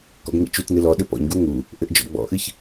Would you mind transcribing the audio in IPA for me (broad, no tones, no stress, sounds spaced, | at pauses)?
k ɔ̰ ɡ ŋ ḭ t͡ʃ u t n ɨ l ɔ ɗ ɘ p ɔ̰ ɲ ɡ u ŋ u | ʔ ɘ ʔ d͡ʒ ɔ̰ ɡ͡b ɔ̰ ʔ ɨ ç